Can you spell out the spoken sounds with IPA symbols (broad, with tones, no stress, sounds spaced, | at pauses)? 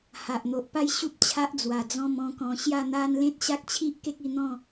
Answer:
h a˨ ʔ n̪ o˨ ʔ p a˥˧ j ɕ u˦ p̚ t͡ɕʰ a˦ ʔ d͡z w a˨˩ d͡z ɔ̃˥˧ m ɔ̃˥˧ k ɔ̃˧ ɕ j a˥˧ n̪ a˦ n l ẽ˦ t̚ ɕ a˦ k̚ t͡ɕʰ i˦ ʔ k e˦ k̚ i˧ n̪ ɔ̃˥˧